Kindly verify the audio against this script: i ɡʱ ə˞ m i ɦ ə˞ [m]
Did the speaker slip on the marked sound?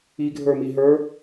yes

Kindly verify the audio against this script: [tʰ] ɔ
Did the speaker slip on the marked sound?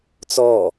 yes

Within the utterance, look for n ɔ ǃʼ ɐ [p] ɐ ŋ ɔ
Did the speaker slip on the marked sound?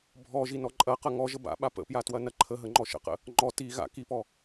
yes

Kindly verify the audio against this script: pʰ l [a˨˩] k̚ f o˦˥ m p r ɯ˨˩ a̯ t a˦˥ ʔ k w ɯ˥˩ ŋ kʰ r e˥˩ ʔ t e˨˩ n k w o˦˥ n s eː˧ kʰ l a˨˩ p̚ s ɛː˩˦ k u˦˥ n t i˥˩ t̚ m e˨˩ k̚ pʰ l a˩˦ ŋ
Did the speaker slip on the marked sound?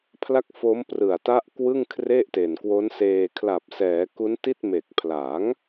yes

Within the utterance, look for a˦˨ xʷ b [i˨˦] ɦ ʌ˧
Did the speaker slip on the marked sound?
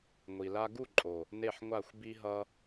yes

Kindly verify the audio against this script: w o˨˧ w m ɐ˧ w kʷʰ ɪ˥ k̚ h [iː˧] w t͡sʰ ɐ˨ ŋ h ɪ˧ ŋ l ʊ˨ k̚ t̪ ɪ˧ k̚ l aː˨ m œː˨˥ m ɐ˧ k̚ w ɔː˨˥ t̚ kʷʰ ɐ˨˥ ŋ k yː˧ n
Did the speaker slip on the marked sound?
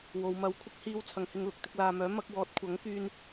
no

